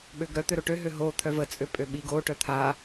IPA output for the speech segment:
ɓøɡɾœt̪ø ɾoʈøɦø ɦot̪ʰœ vət͡sʼø pʼøɓiɡoʈœ t̪ʰa

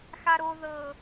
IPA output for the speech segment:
xaɾo ðɤ

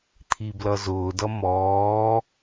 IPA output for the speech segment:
t̪ʰiblʌzʊːdʌ mɔː

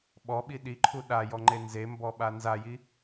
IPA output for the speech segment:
ɓɔɓi ɗiǃʰu ɗajɔŋ͡ǃe nzembɔɓa nzaji

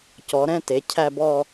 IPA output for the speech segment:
cɔ˩˧ɾɛ̃˧˥˧ te˩˧ cʰæ˥˧bɔ˥˧

